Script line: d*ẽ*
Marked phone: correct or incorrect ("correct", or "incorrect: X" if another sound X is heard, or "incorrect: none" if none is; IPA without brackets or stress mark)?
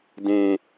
correct